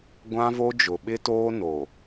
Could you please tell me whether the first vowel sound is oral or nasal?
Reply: nasal